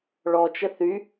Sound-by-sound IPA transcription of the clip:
ɭ ɔ t͡ʃ ə θ y

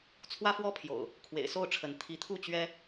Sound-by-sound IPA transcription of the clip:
t͡sʰ w ä˦ f w ɔ˦ pʰ j o̰˨˩ ʊ̯ | kʰ w ḛ˨˩ ɪ̯ s o˥˨ ʊ̯ ʈ͡ʂʰ ə˨˦ n t̪ʰ i˨˦ t̪ʰ u˥˨ t͡ɕ ɥ ɛ˦

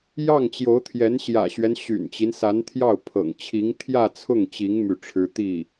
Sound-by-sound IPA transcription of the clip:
j ɑ˥˩ ŋ t͡ɕ j o˧˥ ʊ̯ t̪ʰ j ɛ˧˥ n ɕ j ä̰˨˩ ɕ ɥ ɛ˦ n ɕ y̰˨˩ n t͡ɕ i˦ n s a˧˥ n t̪ʰ j ɑ˥˩ ʊ̯ pʰ ɤ̰˨˩ ŋ t͡ɕʰ i˧˥ ŋ t̪ʰ j ä˥˧ t͡sʰ ʊ˥˩ ŋ t͡ɕ i˧˥ ŋ m y˥˩ ʈ͡ʂʰ ɻ̩˥ t̪ i˥˩

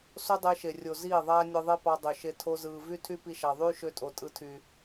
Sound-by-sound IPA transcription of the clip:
s o˦ dˤ e˧ ʃ e˨ rʲ o˨ z iː˦˨ ðˤ æː˦ nʲ ɯ˧ ðˤ e˦ p ɑ˧ dˤ ø˨ ʃ e˧ tʰ o˦ z ɯː˧ v y˦ tʰ y˦ p i˧ ʃ ɑ˨ ðˤ yː˦ ʃ ø˧ tʼ o˨ tʼ ɯ˦ tʰ yː˧

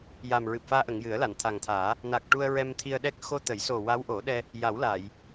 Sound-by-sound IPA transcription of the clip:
j a˨˩ m ɹ ɨ˨˩ p̚ f aː˧ ʔ ə˨˩˨ ŋ j ɨ˨˩˦ ə̯ l a˨˩˨ n t̪ʰ a˨˩ ŋ t̪ʰ aː˨˩˦ | n a˨˩ k̚ ʈ u˧ ə̯ ɹ ɛ˧ m t̪ʰ i˧ ə̯ ɗ ɛ˦˥ k̚ x o˧ t̪ ə˨˩˦ j s o˨˩ w a˧˥ w ʔ o˨˩˦ ɗ ɛ˧ | j a˨˩˦ w l aː˨˩˨ j

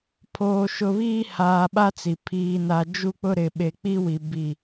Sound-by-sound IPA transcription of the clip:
pʰ oː˨ ʃ ʊ˨ β iː˦ h aː˨ ɓ a˦ t͡s i˨ pʰ iː˦ n a˦ d͡ʒ u˦ k͡p ʊ˦ ɾ ɪ˨ ɓ e˨ k͡p i˦ w i˨ b i˦˨

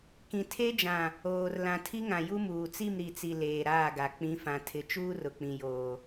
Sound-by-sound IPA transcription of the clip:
k ĩ˨ tʰ e˦ d͡ʒ ã˨ | oː˨ r l ã˨ tʰ i˦ ŋ ã˨ j u˦ m uː˨ t͡s i˦˨ m ɾ i˨ t͡s i˨ l eː˨ ɾ aː˦˨ ɡ a˨ k͡p ĩ˨˦ f ã˨ tʰ ɪ˨ t͡ʃ uː˦ r ʊ˨ k͡p ĩ˨ j oː˨

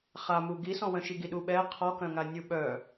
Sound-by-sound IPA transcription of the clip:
χ a m u ɡ i s ɔ̃ w œ̃ ʃ i ɡ i ɗ u ɓ ɛ qʰ ɔ k œ̃ ŋ a nʲ u ɓ œ

